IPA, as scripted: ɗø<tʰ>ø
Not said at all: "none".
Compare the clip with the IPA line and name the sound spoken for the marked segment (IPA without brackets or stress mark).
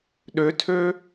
tʰ